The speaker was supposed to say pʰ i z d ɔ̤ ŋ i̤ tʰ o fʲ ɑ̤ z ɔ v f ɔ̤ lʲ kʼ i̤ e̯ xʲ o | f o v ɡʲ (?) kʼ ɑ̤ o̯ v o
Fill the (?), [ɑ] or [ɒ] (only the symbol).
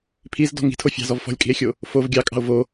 ɑ